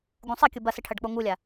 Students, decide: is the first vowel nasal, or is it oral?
nasal